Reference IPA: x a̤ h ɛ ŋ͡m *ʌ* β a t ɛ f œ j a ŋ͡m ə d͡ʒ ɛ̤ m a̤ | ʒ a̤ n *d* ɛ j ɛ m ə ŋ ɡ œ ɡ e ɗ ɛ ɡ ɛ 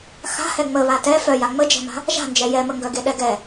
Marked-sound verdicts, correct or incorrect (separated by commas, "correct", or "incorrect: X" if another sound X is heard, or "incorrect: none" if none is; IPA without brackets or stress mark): incorrect: ə, incorrect: d͡ʒ